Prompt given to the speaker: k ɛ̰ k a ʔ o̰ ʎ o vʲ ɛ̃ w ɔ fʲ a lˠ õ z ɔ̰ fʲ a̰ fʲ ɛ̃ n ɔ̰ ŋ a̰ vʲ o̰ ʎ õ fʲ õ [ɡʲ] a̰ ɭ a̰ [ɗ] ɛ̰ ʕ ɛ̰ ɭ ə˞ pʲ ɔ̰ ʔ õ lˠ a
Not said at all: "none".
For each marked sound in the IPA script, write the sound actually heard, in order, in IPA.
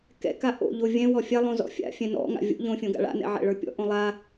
ɡ, n

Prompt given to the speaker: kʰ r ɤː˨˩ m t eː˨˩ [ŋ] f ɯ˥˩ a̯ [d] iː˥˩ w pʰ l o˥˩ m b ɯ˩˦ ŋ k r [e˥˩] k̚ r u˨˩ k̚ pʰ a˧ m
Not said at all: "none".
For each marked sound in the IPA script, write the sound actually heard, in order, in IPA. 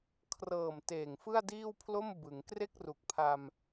ŋ, d, e˥˩

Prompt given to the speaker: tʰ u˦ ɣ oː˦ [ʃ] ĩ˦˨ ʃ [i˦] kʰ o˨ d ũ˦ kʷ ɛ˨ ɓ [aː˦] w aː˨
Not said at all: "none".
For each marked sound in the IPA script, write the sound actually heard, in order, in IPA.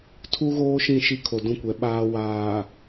ʃ, i˦, aː˦

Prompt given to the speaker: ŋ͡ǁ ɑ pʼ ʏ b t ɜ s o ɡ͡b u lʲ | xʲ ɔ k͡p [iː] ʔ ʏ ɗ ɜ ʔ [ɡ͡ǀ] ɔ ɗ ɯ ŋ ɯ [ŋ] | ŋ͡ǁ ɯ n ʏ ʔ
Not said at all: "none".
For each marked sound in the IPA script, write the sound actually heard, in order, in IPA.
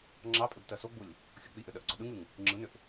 i, ɡ͡ǀ, ŋ

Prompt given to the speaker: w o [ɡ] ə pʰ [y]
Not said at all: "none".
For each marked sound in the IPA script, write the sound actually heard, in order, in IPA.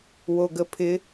ɡ, ɪ

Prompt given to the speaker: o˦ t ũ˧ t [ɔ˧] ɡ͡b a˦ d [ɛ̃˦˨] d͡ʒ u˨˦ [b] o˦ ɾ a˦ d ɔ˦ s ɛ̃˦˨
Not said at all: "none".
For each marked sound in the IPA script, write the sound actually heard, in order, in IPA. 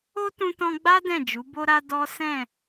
ɔ̃˧, ɛ̃˦˨, b

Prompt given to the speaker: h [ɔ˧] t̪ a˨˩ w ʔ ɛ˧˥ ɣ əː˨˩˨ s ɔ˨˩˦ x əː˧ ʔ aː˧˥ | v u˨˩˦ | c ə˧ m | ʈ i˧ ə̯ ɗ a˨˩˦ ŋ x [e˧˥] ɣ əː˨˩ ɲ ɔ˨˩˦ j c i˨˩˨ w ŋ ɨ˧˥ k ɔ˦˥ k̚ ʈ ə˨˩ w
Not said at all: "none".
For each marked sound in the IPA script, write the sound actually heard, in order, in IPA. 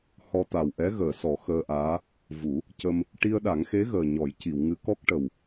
ɔ˧, e˧˥

